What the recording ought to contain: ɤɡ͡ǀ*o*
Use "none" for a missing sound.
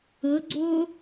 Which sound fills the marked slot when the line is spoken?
o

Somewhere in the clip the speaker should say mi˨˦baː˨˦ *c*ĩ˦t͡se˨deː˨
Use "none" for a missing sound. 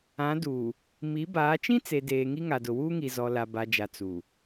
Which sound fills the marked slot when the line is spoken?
t͡ʃ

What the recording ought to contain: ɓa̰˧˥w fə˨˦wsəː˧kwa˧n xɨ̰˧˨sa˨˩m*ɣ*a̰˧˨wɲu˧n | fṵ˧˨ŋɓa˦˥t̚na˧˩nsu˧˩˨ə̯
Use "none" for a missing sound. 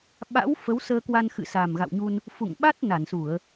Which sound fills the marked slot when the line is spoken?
ɣ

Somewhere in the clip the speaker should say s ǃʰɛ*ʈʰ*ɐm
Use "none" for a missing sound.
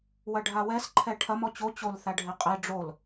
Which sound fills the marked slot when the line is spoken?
ʈʰ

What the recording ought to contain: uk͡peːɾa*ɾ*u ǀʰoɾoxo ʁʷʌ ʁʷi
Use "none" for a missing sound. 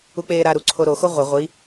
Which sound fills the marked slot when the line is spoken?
ɾ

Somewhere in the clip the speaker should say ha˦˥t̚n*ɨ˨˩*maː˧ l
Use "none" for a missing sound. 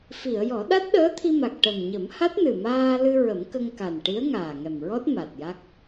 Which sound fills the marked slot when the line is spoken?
ɨ˨˩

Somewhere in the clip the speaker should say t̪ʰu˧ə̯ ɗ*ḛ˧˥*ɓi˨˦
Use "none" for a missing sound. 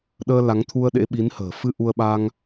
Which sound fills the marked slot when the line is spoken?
ḛ˧˥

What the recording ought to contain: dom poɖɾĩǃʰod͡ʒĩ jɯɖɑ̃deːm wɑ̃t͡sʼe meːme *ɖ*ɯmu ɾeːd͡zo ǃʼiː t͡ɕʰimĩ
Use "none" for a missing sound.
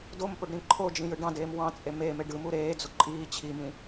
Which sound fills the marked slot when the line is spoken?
ɖ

